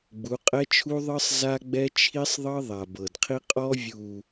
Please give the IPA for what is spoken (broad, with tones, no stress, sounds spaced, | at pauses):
ɡ͡b u˨˦ qʼ ɛ˦ t͡ʃʰ u˦ ðˤ ɯ˦ sˤ z a˦ ɡ͡b ɛ˦ t͡ʃʰ i˦ sˤ ðˤ ɤ˦ ðˤ a˨ b ɤ˨ d qʰ i˦ qʼ ɔ˦ vʲ u˨